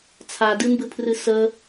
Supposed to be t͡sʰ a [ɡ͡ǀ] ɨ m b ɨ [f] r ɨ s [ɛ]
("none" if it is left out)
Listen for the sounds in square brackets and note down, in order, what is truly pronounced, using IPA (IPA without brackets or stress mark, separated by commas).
d, pʰ, ə